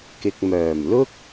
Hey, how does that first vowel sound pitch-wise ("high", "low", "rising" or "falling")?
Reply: low